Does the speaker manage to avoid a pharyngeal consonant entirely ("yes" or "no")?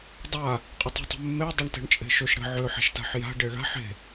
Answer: no